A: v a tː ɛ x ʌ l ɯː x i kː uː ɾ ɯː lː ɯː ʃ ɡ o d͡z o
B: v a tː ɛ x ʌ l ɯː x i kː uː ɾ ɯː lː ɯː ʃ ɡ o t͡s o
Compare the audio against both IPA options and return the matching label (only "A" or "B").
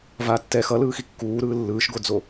A